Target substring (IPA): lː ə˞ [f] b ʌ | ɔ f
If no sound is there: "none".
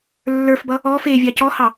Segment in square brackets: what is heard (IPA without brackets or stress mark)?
f